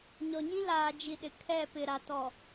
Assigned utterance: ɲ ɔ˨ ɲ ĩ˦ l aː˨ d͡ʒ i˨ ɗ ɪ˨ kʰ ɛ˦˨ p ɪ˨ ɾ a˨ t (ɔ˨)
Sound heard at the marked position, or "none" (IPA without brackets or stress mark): ɔ˨